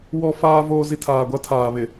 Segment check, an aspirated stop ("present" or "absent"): present